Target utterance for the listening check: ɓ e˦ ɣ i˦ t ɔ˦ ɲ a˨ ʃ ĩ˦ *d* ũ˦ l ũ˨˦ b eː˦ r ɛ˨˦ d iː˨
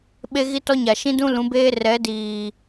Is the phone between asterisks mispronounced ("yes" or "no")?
no